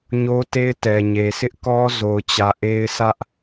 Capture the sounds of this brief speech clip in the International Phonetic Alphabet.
ɲ o˦ t e˦ ɪ̯ t ɛ˨ ɲ e˨ sʰ ɪ˦ ʔ k ɔ˦ z o˨ ʊ̯ t͡ɕ ä˨ ʔ e˦ ɪ̯ sʰ ä˦ ʔ

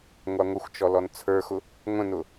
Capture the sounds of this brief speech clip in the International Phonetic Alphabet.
ŋʷ ɑ ŋʷ ə xʷ t͡ʃ ɔ l ɔ n t͡sʰ ə˞ x ʊ | ŋʷ ə̃ n ʊ

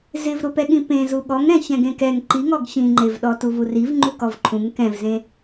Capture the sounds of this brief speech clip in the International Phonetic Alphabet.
z ɪ v ɾ ʊ p ɛ ɠ ĩ p ẽ z u ɠ ɔ ŋ ɾ ɛ̃ ç ɛ̃ ɡ ẽ k ɛ ŋ ǃ i ŋ ɔ ɡ ç ĩ ŋ͡ǃ e v ɗ ɔ t u v u r i v ŋ͡ǃ u k ɔ v ǃʰ ũ ŋ k ɛ̃ v z ẽ

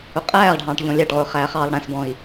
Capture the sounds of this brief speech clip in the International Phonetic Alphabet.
ʊ qʼ æː ʁ ɖʱ ɑ̃ː ʈ ʎ ɔ̃ lʲ ɑ ʈ ʁ ʊː χ æː χ ɑː lˠ ɽ æ̃ s b ɔ̃ i̯

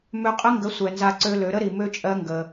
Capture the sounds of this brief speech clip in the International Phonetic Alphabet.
m ø˧ qʼ ə˦ ŋ ɡ ə˨˦ sʷ ɛ˨ n z a˧ ǀ ø˦ l ø˨˦ ɾ ə˦ ɾ i˨ m ø˦ t͡ʃʼ ɜ˦ ŋ ɡ ə˧

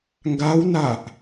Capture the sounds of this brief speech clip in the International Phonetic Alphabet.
ŋ ɡ a w n a ʔ

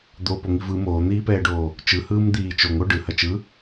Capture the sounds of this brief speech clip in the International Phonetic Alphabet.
d̪ o p o ŋ i v ɯ m oː n̪ iː p ɛː ɖ oː | t͡ʃ ɯ h ɯː m d̪ iː t͡ʃ o ŋ o ɖ ɯ h ɐ t͡ʃ ɯ

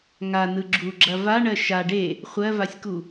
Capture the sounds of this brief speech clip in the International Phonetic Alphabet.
ŋ a n ɯ ɡ͡ǁ u ɡ͡ǁ ɐ v a ɳ ɜ ʃ a ɖ e | χʷ ɜ v a sʲ k u

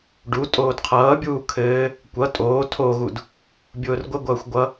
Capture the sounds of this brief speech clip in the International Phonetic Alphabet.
ɖ u tʼ oː d qʰ ʌː bʲ uː kʰ ɘː | kʷ ʌ tʼ oː tʰ o ɣ u d | bʲ ʊː r ɡʷ ɘ ɡʷ ʌː xʷ ɡʷ ʌ

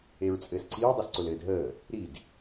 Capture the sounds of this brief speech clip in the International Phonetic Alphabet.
e ɹ t͡sʼ ɘː s ǀ i ɹ dˤ ɘ s ǀ ʊ l ɘː d ɦ əː | ɾ i d

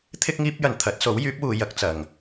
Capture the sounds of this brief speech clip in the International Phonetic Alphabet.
t̪ʰ ɪ˧ k̚ ŋ iː˧ p̚ j ɐ˨ n t̪ʰ ɐ˨˥ t̚ s o˨˥ w j yː˨˥ p̚ w uː˨˧ j ɐ˨˥ k̚ t͡s ɐ˨ ŋ

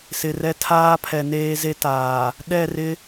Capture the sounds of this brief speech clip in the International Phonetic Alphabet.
s ɪ˨ r ɛ˦ tʰ aː˦ pʰ ɛ˨ n eː˦ z e˦ t aː˨ | ɗ ɛ˦˨ r ɪ˦

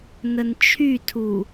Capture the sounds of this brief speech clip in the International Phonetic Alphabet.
n ə n t͡ʃʰ y tʰ u

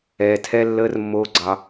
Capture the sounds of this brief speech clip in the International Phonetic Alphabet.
ɛː˨ tʰ ɛ˦ lː əː˦ r mː oː˦ ɡ͡ǀ ɑ˧

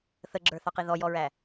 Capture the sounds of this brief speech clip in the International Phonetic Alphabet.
θ ə ɡ͡ǁ ə˞ θ ɑ q i ð ɔ j ɔ ɹ æ

